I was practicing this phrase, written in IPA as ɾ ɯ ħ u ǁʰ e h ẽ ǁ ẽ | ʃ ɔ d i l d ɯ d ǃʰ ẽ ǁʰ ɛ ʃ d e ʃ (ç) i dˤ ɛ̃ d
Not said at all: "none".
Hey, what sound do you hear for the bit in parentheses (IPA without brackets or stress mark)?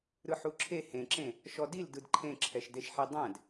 ħ